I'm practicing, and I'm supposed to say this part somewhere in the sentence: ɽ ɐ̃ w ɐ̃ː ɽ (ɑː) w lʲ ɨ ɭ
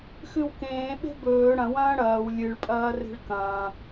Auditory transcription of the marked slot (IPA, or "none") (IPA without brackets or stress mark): ɐː